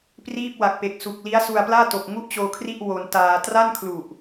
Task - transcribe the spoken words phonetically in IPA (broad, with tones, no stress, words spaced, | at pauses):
priː˥˩p̚wa˨˩k̚ pe˨˩k̚su˨˩k̚ li˦˥a̯su˧a̯plaː˥˩ to˨˩k̚ ŋu˥˩ʔt͡ɕoː˧kʰri˥˩ʔ wo˧ntaː˧ tra˥˩nkʰlu˨˩ʔ